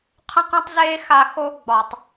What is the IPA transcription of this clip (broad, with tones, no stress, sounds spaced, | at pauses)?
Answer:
qʰ ə̃˦ q ə̃˦ tˤ z eː˦ x a˧ x o˧ ɡ͡b ɒ˨ tˤ